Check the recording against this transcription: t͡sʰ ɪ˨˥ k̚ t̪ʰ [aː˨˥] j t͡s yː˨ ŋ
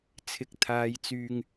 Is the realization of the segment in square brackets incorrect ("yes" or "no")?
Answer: yes